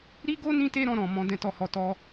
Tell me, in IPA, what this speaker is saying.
ɾi˦ɡo˦ nĩ˦te˦ɾɔ̃˧ɾɔ̃˨ mɔ̃˧ dɛ̃˦tɔ˦˨hɔ˧ tɔ˦

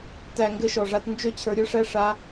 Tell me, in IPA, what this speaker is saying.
tæ˨ ŋɡɘ˧ʃɔ˨ʐa˧t nd͡ʒø˦t͡ɕʰə˞˧ɾʲə˞˦ʂæ˦ ʂa˧

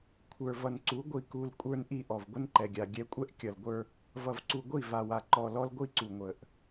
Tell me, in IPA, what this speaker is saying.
kʷʰə˞˨vʌ˨nǀu˨˦ ɡʷi˨ku˨l kʷʼə˞˦nʔi˦ʔɔ˨v ɡʷə˦nǃɛ˨ɡʲa˨ ɡʲɛ˦ kʷʼɛ˦ʔkʲʌ˨lɡʷə˞˦ | vʌ˨vǀu˨ɡʷi˦˨ va˨wa˨ǃɔ˨ lɔ˦lɡʷi˦ǀu˨ ŋʷə˨ʔ

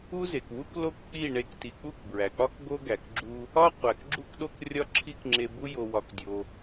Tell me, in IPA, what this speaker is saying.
u˦ze˨kwu˦k lo˦kk͡pi˦˨ ɳe˦kti˧ k͡pu˦˨kbɹæ˨k͡pɒ˦k ɡo˦ɡæ˨kɡ͡ǁu˦ | ɒ˦qʷæ˨k ɡ͡ǁu˦kɗo˦krʲɒ˦ ǁʰi˦kŋ͡ǁe˧bu˦ jo˧wɒ˧kdʲo˧

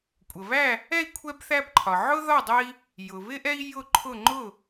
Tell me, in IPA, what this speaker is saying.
kʷʼə˩βæ˥˨ | ɛ˥˨i̯kʷʰɛ˦bθæ˦b ǃʰɒ˩ʕʊ˦ ðɒ˥˨dˤə˦i̯ | jʊ˩βɪ˦ʔɛ˦i̯ jʊ˥˨ǃʰʊ˥˨ ŋ͡ǃʊ˥˨

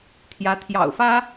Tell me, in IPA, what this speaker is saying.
t̪ʰjä˧˥ t̪ʰjɑ̰˨˩ʊ̯fä˥

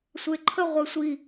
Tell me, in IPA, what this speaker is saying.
sʷeǃʰə ʁʷesʷi

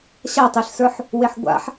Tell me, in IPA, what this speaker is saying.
ɕatˤeɬsə˞ħ | weħɡʷa̰ħ

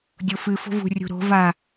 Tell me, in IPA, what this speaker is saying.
dʲofɨ fo̤vṳ rʲṳɾo̤ va

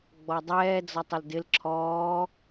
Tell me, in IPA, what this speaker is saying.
ɡ͡bɔdˤɛːd͡zɔtˤ əldɪl ǁʰɔː

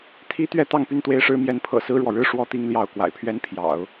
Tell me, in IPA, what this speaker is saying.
t̪ʰi˥t̪ɥɛ˥˧ t̪ɑ˥˧ŋpy˥˧nt̪we˥˩ɪ̯ʂɻ̩˥ mjɛ˧˥npʰɤ̰˨˩ sɹ̩˥ɻwɔ˨ɻɻ̩˥ ʂwɔ˥˧t̪i˥˧ŋ ljɑ˥˩ʊ̯ kwa̰˨˩ɪ̯pʰɥɛ˥npʰjɑ̰˨˩˦ʊ̯

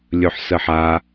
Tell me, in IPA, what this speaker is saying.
lʲɵħsəħa

